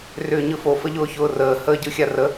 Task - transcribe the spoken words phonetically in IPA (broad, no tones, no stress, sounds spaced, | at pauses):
r ʏː ɲ ɯ f o f ə ʎ ʊː ç ʊː r əː h əː ɟ ɯ xʲ a r ə